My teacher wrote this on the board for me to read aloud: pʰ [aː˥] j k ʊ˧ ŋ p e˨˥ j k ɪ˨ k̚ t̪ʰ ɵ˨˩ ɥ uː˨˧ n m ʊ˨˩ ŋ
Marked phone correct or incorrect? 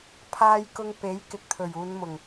incorrect